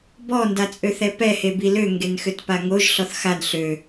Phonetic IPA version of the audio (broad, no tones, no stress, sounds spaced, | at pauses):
b ɔ n d a t͡sʼ ø θ ɛ p ɛ h e b i l ø ŋ ɡ e n x ø t p a ŋ o ʒ ɬ ɔ θ x a n ɬ ø